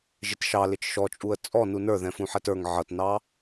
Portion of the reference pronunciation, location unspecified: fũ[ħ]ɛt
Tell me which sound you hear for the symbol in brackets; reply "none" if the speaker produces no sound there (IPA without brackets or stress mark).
ħ